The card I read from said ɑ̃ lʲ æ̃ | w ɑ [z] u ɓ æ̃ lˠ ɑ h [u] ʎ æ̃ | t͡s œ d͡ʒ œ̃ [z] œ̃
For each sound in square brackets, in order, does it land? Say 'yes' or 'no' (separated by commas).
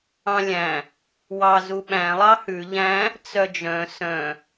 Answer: yes, no, no